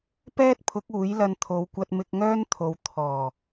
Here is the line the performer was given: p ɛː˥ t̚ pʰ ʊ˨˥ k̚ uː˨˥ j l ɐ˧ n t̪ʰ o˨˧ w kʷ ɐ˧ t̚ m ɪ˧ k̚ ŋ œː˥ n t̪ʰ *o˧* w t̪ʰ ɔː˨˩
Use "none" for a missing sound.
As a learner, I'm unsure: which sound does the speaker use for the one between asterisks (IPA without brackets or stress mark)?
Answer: o˨